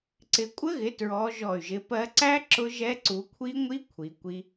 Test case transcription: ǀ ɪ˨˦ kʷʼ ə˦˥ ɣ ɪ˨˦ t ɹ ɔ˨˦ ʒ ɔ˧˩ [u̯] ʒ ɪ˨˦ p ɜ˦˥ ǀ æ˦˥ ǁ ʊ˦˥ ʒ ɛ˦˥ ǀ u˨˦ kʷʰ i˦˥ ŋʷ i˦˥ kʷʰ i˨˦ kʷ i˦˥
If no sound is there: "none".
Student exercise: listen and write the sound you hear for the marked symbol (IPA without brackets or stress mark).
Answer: y̯